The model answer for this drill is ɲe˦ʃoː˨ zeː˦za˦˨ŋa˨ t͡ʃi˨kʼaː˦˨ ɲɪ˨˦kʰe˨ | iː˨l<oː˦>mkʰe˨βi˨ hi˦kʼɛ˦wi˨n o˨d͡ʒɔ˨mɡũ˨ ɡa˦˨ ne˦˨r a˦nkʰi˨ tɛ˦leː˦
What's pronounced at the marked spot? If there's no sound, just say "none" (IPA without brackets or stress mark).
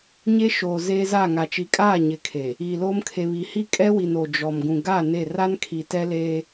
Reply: oː˦